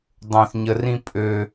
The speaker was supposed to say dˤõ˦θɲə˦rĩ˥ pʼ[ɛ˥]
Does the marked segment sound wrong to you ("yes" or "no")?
yes